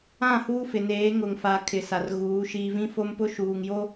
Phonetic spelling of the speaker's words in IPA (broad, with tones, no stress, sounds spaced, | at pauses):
ã˦˨ h uː˦ f ɪ˨ n eː˨˦ ŋ ʊ˨ ŋ f a˨ kʰ ɪ˨ s a˨ r ɣ uː˨˦ ʃ iː˨ v ĩ˦ f o˦ m p ʊ˦ ʃ uː˨ ŋ j o˦